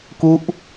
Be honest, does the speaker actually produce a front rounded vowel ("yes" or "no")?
no